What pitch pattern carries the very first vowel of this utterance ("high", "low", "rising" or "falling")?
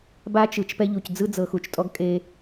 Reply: high